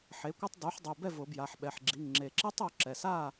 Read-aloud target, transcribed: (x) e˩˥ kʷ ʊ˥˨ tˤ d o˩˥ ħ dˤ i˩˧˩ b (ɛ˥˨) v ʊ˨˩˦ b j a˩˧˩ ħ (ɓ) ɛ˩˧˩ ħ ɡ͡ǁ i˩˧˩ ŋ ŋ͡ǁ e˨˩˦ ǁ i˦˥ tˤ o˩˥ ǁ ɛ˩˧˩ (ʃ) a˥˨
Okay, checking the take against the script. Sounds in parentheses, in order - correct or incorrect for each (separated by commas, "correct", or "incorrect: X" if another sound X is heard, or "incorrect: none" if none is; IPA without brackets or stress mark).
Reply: incorrect: ħ, correct, correct, incorrect: s